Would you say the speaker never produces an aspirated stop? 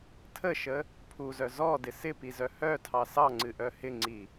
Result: no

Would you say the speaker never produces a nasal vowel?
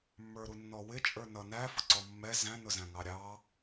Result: no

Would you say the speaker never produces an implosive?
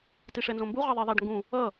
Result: yes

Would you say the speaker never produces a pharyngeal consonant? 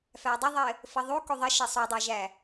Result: yes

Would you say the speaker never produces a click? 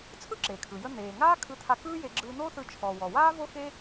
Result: no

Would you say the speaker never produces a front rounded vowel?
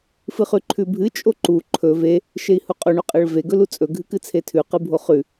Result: yes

